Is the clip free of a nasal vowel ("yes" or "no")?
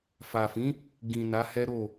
no